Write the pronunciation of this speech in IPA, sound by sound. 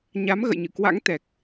ɲ a˨˦ m ɣ ə̰˧˨ j ɲ ɨ̰˧˨ k w a̰˧˥ ŋ t̪ ɛ˨˩ k̚

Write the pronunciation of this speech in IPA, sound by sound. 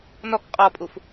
n ɔ k qʼ ɔ pʼ u f

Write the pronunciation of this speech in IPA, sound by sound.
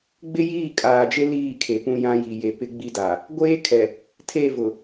ɡ͡b ɪ˦ j iː˦˨ kʼ aː˨ d͡ʒ e˦ l iː˦˨ kʰ e˨ p ũ˦ j ã˦ j i˨ j e˨ p ɪ˦ ɡ͡b i˦ d a˨ | ɡʷ eː˦ kʰ ɛ˨ | tʰ e˦˨ v ʊ˨

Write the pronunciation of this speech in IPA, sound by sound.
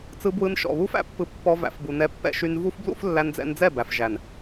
t͡s ɯ˧ b w ɯ˧ n ʃ ɔ̰˨ β u˦ f æ̰˦ pː ɯ˧ pː ɔ˧ v æ̰˨ f b u˨ n ɛ˧ pː ɛ̰˧ ʃ y˧ n v u˦ f b l ṵ˦ f lː æ˧ n d͡z ɛ̰˧ n d͡z ɛ˦˨ b æ˨ f ʒ æ˨ n

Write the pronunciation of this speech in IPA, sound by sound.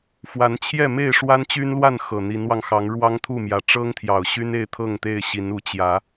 f w a˨˦ n t͡ɕʰ j ɛ˥˨ m e˥˨ ɪ̯ ʂ w a˦ n t͡ɕ y˦ n l w a˥˨ n x ɤ˨˩ n̪ i˨˦ n w ɑ˧ ŋ x ɑ˨˦ ŋ ɻ w ɑ˦ ŋ t̪ʰ u˥˨ m j ä˨˦ ʈ͡ʂ ɤ˦ ŋ t̪ʰ j ɑ˨˩ ʊ̯ ɕ y˦ n e˥˨ ɪ̯ t̪ʰ ɤ˥˨ ŋ t̪ e˥˨ ɪ̯ ɕ i˨˦ n u˨˦ t͡ɕ j ä˨˦

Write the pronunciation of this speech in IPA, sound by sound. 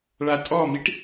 ɭ a tʼ ɔ m i ʈ

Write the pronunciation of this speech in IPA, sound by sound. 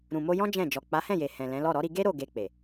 ɾ ũ˨ m o˧ j ɔ̃˦ d͡ʒ ɛ̃˦˨ d͡ʒ ɔ˨ k͡p a˨˦ h ɛ̃˦˨ j e˨ h ɛ̃˨ l ɛ̃˨˦ l ɔ˦˨ ɾ ɔ˨˦ ɾ i˧ ɡ e˦ ɾ o˦˨ ɡ e˧ k͡p e˨

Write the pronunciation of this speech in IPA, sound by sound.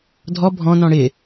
dʱ ɔ bʱ ɔ̃ n ɔ̃ ɽ ɪ

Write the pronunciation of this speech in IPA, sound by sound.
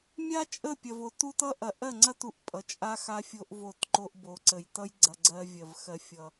mʲ a˦ t͡ʃʼ ə˦˨ pʲ ɐ˨ v o˨ t u˦ t ʌ˦ ʔ ɐ˨˦ ʔ ɜ˦˨ ŋ͡ǀ ɐ˦ t u˨˦ ʔ pʼ ʌ˨ t͡ʃʼ a˦ x a˦ fʲ o˦ ʔ v o˦˨ t ǃ o˦ ʔ b o˨ ǀ ə˨ j t ʌ˦ j ɡ͡ǀ ɐ˦ ɡ͡ǀ ɜ˦ vʲ ɜ˨ v x ɜ˨ fʲ ʌ˨

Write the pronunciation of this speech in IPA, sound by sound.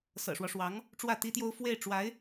s ɤ̰˨˩ ʂ w ɔ˦ ʂ w ɑ˧˥ ŋ | ʈ͡ʂ w ä˥˩ t̪ i˥ t̪ j o˥ ʊ̯ f w e˥˩ ɪ̯ ʈ͡ʂ w a˧˥ ɪ̯

